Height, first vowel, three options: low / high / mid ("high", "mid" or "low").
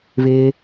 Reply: high